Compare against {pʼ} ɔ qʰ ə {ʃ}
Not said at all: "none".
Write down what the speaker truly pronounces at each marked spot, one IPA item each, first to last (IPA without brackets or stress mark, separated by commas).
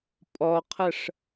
pʼ, ʂ